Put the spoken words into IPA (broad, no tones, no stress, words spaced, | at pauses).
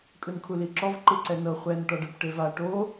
kʼɯnkʰuliǁɔv ǃɯǀɛnɤ χʷɛn ʈɔɖɤpʈeva ʈo